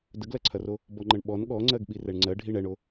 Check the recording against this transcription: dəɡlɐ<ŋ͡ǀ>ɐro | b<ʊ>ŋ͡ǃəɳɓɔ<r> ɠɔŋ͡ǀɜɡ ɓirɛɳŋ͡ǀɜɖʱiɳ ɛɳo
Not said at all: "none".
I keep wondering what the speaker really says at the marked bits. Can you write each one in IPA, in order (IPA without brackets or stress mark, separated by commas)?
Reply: ǀʰ, ɔ, n